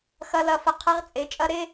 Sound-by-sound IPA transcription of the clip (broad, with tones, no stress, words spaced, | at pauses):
xɐ˦˥lɐ˦˥fə˦˥ qʰɐ˦˥ʁt͡sʼe˨˦t͡ʃʼɐ˦˥ ɾe˦˥